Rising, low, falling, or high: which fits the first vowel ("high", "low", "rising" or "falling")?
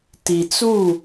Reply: low